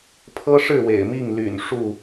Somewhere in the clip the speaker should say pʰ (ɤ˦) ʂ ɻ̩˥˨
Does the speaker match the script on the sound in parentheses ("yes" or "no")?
yes